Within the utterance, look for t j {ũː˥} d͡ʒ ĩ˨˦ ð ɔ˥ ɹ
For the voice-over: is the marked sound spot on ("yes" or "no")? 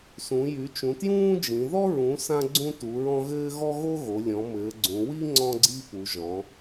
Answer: yes